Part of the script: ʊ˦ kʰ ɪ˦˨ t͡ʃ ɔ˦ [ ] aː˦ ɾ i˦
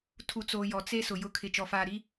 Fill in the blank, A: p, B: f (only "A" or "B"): B